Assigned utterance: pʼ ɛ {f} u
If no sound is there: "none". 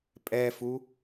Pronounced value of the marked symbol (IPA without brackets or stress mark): f